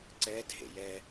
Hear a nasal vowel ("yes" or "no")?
no